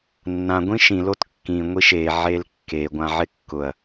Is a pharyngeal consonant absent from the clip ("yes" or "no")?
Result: no